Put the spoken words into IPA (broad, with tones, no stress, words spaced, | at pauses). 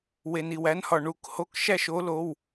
we˧ni˧wæ˦˥nhɒ˧ ɳu˦˥k ho˧˥˧kʃæ˥˧ʃ o˦˥ lo˧˥˧w